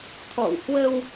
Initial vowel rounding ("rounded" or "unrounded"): rounded